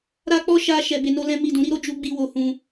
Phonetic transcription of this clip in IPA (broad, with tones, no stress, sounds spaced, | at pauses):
ɾ a˦ k͡p ɔ˦ ʃ a˦ ʃ ɛ˧ b e˧ n o˦ l ɛ̃˦ m i˦˨ d ũ˨˦ ɾ i˦ ɾ o˦ d͡ʒ u˦ ɡ͡b i˦ w o˧ h ũ˧